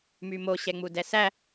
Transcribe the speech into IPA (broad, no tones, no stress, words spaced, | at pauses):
mymo ɕɛŋ͡mudɛsæ